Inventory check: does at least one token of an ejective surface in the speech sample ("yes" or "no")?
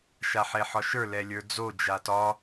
no